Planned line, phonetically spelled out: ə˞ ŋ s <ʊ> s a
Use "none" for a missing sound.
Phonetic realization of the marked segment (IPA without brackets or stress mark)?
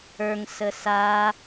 ə